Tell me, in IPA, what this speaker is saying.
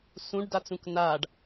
s ũ ɖ d a t͡s ũ k n a ɖ

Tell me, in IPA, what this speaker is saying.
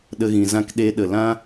ɗ ə˧ ɣ ĩ˨ z ã˦ k ɗ e˧ ɗ ə˨ l ã˦

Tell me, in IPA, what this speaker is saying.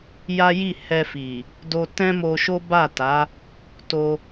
j a˦ j i˦˨ h ɛ˧ f i˨ | d o˧ t ɛ̃˦ m o˧ ʃ o˦ b a˦˨ t a˨˦ | t o˧

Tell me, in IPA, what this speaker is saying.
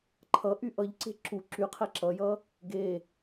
ǃʰ ʌ ʔ y ʔ ʌ ʎ ǀ e̤ ǁ u ǁ y qʰ ɛ ǁ ʌ j ʌ | ɡ e

